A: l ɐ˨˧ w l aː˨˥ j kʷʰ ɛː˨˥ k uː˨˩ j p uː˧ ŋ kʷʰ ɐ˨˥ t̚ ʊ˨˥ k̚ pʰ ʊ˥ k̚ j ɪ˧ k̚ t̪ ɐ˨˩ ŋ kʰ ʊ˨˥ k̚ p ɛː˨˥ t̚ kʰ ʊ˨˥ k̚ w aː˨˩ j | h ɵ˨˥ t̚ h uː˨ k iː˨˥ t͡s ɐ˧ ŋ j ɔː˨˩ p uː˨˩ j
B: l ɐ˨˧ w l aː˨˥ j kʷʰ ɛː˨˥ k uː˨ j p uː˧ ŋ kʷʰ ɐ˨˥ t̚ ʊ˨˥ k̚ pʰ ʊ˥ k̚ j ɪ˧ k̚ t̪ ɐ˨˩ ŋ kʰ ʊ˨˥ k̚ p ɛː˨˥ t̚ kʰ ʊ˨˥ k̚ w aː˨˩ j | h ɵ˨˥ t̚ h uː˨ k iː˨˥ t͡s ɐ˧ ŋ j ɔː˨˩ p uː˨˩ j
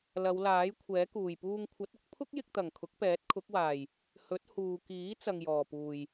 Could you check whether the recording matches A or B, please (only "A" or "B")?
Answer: A